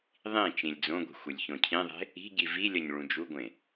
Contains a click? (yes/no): no